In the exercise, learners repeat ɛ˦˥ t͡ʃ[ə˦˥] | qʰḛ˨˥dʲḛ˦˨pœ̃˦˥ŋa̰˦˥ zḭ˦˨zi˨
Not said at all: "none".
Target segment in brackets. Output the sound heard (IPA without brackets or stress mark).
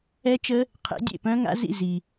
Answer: ə˦˥